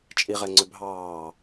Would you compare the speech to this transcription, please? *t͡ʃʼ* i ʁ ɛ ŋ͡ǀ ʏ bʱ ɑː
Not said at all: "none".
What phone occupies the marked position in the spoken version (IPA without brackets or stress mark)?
t͡ʃʼ